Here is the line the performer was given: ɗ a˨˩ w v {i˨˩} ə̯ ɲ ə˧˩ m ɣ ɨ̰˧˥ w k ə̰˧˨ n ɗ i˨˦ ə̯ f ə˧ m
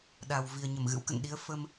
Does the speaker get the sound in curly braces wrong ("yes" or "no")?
no